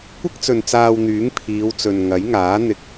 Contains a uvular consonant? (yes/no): no